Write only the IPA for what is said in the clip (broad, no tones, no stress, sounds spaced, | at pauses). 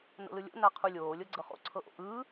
n o̰ l ɯ lʲ o̰ n a qʰ u lʲ oː lʲ ɤ ɡ͡ǀ ɤ χ o̰ ǀʰ ɤ ʔ o̰ ʔ ɯː